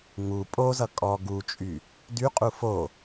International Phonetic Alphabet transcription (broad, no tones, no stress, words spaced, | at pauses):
ŋu pʼozʌ kʼɔ ɡut͡ʃʼy | dyqʼu fo